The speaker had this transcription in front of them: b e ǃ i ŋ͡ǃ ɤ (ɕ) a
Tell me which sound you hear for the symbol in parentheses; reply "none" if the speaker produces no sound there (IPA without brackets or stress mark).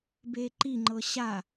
ɕ